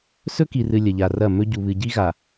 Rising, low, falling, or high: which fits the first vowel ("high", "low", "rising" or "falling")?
high